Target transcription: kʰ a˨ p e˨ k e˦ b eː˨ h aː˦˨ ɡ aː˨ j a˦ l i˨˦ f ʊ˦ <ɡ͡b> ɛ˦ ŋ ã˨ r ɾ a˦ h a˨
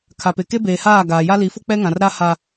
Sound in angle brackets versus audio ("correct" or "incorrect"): incorrect